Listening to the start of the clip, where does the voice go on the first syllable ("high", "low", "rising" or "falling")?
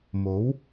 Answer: rising